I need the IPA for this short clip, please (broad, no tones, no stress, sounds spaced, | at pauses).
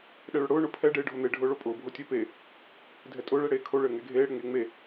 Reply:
ɗ ɛ ɭ ʊ ɽ ʊː ɳ ʊ pʰ ɛ ɖ eː ɖʱ o n̪ e ɖʱ ʊː ɭ o pʼ ʊː bʱ o tʲ ɘː p e | dʱ ɛ tʼ ʊː ɭ ɛ ɽ eː kʰ o ɭ ɘː ŋ ɛ ɡʱ eː ɽ ɘ ŋ eː ŋ͡m e